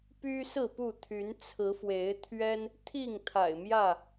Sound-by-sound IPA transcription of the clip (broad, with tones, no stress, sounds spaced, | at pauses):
p y˦ s ɹ̩˥˨ p u˥˨ t̪ʰ y˨˦ n t͡sʰ ɹ̩˨˦ f w e˨˦ ɪ̯ t̪ʰ ɥ ɛ˦ n | t̪ʰ i˥˨ ŋ t̪ʰ a̰˨˩ ɪ̯ m j ä˥˨